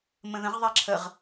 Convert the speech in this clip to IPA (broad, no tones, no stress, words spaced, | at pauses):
mə̃ðə̃ʁðˤɛ ǁʰəʁ